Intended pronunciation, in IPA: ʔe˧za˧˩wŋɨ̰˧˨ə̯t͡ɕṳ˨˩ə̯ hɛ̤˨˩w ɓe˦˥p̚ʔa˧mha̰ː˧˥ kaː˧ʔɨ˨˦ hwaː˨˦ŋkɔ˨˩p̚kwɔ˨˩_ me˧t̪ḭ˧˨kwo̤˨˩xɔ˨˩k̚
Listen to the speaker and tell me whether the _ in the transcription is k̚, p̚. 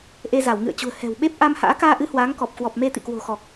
p̚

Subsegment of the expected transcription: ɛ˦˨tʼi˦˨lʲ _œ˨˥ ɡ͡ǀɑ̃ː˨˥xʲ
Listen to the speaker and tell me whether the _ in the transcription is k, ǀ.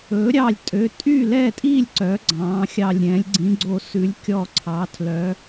ǀ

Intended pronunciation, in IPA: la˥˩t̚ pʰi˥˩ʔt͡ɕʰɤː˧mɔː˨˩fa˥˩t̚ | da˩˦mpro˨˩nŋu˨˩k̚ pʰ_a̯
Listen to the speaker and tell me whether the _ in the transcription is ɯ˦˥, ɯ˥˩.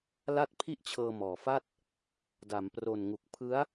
ɯ˦˥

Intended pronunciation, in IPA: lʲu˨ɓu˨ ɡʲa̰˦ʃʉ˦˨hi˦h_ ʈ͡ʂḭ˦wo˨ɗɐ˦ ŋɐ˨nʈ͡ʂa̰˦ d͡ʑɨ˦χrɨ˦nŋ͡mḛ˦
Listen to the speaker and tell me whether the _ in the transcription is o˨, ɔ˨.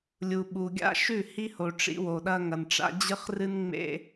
o˨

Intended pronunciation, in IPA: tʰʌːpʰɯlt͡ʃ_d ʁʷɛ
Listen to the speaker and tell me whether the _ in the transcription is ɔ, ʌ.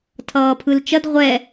ʌ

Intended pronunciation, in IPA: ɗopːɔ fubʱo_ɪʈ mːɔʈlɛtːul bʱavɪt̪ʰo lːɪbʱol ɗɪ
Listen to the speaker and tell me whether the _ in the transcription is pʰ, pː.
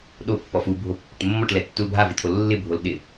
pː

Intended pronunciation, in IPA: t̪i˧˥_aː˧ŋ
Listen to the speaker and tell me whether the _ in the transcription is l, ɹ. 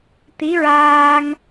ɹ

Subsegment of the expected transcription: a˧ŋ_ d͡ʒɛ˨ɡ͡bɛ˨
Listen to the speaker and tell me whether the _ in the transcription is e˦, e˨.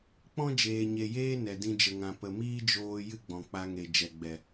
e˨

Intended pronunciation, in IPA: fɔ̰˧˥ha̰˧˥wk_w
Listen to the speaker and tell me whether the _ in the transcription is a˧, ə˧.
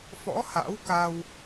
a˧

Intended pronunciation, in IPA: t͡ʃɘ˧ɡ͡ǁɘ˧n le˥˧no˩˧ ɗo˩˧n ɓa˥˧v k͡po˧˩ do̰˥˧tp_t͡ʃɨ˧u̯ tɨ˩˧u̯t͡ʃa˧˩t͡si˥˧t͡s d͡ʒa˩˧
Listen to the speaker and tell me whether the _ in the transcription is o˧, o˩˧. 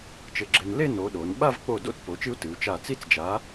o˩˧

